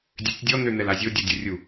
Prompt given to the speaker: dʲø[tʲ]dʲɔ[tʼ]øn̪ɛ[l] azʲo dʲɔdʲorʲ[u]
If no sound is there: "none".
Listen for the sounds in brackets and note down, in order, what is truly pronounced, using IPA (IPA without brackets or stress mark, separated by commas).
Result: tʲ, n̪, l, u